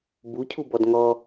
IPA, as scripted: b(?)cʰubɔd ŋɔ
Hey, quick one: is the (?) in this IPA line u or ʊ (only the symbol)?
u